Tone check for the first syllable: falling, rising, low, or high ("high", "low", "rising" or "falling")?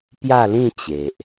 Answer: falling